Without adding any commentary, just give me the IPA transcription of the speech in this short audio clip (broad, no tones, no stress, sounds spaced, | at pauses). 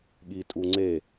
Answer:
ɠ i tʼ u ŋ͡ǀ e